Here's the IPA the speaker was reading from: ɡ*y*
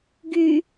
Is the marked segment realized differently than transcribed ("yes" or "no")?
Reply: no